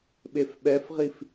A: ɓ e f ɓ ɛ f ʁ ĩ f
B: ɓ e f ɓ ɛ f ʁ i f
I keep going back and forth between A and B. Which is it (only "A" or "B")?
B